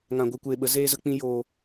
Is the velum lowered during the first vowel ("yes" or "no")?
yes